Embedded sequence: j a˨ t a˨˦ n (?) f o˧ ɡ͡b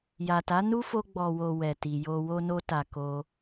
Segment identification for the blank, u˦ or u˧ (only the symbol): u˦